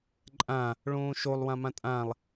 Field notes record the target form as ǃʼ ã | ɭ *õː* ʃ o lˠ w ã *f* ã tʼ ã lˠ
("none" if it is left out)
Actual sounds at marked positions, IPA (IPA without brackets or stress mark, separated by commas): õː, m